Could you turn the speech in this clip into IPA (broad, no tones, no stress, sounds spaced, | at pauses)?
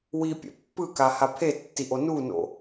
w i pʲ ɛ̰ pː ɯ k a h a pʰ e tː i ʔ o n u n o̰